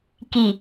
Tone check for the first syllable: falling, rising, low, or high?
low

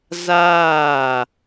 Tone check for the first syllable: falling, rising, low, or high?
falling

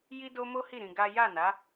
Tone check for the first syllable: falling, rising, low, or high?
high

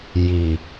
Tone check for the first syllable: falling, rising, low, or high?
low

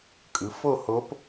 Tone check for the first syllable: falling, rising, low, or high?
rising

